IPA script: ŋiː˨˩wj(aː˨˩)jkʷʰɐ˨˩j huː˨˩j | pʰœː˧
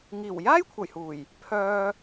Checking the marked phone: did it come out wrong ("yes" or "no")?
yes